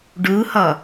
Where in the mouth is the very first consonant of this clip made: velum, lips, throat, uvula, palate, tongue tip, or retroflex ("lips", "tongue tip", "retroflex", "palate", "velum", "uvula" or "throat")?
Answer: retroflex